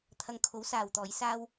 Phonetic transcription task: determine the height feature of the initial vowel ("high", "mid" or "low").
low